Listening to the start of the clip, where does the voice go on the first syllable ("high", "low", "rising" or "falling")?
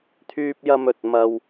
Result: high